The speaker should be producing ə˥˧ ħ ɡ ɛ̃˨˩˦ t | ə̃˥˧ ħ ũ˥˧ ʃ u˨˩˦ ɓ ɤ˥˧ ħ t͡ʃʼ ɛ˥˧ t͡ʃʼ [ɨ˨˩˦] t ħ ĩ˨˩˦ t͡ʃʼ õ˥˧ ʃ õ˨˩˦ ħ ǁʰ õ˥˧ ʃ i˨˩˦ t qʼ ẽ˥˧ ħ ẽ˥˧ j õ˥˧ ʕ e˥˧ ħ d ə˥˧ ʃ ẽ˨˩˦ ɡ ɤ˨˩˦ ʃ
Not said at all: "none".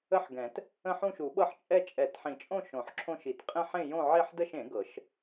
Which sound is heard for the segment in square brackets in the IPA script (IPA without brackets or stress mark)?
ɛ˨˩˦